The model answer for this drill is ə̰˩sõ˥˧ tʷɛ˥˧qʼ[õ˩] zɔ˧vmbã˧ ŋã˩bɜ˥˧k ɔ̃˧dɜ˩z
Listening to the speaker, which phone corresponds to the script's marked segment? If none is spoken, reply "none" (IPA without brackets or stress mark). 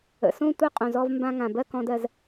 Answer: õ˩